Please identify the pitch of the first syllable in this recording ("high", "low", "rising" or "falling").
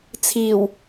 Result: low